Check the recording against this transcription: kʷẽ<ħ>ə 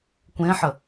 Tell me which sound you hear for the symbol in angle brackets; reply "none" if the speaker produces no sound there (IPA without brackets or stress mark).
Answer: ħ